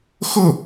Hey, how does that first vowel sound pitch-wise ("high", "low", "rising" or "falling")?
falling